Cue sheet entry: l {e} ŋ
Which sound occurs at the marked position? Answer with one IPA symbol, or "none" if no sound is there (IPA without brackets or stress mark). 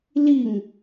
i